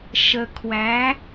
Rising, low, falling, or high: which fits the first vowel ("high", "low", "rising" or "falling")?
low